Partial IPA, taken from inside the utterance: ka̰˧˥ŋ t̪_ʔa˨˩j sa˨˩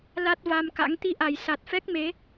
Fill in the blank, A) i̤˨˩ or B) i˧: B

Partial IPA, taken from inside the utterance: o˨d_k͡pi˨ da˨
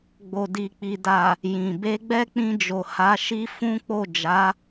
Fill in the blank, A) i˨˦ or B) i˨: B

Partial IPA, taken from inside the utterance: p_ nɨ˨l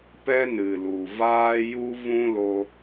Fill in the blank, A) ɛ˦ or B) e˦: A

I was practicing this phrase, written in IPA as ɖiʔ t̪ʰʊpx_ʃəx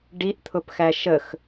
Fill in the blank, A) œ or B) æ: B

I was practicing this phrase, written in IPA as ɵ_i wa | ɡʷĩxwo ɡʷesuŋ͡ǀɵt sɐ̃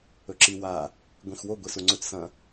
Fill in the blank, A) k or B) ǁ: B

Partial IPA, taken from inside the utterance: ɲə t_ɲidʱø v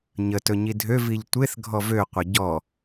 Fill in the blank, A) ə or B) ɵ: B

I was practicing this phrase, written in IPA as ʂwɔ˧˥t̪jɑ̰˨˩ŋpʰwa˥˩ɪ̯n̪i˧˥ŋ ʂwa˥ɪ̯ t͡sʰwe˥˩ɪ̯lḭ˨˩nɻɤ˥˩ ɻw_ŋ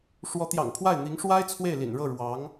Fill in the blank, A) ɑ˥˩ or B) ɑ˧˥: B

